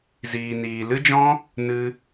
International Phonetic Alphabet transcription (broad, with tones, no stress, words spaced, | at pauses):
ziː˧niː˧ lɨ˦d͡ʒɔ̃˦ | nɨ˦